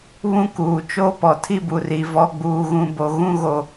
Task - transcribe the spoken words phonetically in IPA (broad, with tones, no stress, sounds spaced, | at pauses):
β ũ˦ k uː˨ t͡ʃ o˦ p ɔ˨ tʰ i˦ b u˨ r i˨ v ɔ˦ ɡ͡b uː˦ ɣ ũ˦ b o˦ ɣ ũ˦ ɣ o˨